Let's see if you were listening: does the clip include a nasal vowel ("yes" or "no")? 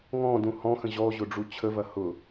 yes